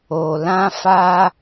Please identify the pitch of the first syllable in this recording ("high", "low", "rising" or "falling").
low